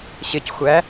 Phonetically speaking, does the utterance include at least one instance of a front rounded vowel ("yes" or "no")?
no